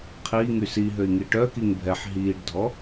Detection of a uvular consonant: present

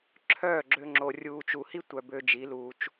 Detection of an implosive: absent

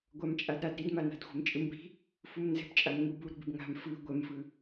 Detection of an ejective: present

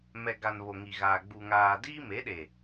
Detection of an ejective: absent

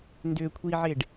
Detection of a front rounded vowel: present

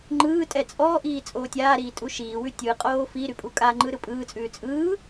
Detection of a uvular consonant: present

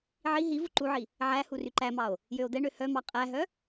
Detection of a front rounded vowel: present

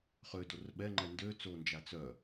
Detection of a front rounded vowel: present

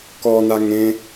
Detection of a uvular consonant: absent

